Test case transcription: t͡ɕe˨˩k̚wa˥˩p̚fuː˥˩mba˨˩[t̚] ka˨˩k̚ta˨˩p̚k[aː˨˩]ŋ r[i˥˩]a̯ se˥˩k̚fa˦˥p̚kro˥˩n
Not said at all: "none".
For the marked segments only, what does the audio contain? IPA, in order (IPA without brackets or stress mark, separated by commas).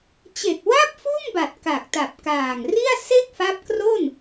t̚, aː˨˩, i˥˩